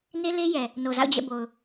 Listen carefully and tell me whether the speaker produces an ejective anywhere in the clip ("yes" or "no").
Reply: no